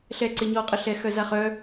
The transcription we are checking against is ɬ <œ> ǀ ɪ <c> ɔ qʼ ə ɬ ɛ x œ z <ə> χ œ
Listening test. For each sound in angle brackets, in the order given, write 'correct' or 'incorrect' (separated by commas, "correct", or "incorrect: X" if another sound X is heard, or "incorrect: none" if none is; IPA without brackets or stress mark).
incorrect: ɛ, incorrect: ɲ, incorrect: a